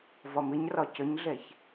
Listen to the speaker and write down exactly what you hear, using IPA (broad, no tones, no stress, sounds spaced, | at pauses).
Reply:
v ɒ m ɪ ɲ r ɒ c ə ɲ ɮ ɛ ç